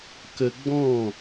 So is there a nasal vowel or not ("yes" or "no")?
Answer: yes